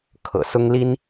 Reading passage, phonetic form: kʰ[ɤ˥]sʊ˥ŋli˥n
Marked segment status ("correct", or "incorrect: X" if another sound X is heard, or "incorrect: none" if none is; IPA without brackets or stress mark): incorrect: ɤ̰˨˩